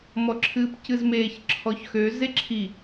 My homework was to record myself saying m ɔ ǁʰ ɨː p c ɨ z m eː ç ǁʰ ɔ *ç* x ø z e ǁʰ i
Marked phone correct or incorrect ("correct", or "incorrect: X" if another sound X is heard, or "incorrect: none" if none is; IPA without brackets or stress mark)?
correct